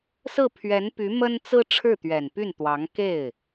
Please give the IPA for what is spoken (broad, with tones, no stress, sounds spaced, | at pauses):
s ɹ̩˥˩ pʰ ɥ ɛ˧˥ n p y˧˥ m ə˥ n t͡s ɹ̩˥ ʈ͡ʂʰ ɻ̩˥˩ t̪ ɥ ɛ˨˩ n p y˥˩ n t̪ w ɑ˧˥ ŋ k e˥˩ ɪ̯